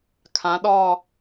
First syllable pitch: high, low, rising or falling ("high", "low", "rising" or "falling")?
rising